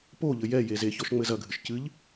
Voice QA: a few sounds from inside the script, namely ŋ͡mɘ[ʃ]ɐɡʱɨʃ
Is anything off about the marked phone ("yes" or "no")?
yes